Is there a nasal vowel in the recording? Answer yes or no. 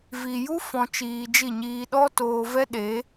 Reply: yes